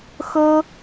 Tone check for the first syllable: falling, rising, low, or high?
high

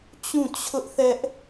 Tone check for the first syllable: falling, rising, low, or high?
falling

